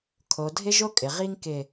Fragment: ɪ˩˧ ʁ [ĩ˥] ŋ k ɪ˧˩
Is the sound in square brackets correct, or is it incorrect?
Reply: incorrect